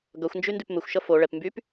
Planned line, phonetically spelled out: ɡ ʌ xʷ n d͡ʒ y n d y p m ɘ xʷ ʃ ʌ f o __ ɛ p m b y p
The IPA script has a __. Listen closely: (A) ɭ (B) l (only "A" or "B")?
A